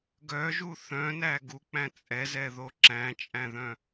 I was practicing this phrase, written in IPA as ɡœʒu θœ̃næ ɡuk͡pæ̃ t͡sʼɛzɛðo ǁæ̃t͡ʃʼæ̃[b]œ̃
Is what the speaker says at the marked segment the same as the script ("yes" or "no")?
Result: no